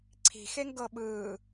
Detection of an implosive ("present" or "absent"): present